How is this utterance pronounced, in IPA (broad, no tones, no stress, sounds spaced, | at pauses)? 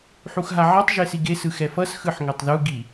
ħ u x ɦ a ʕ ɛ tˤ ʒ e s i ɡ e s ɯ x ɛ f ʌ s x ɯ ħ ŋ ɛ tˤ ð u ɡ i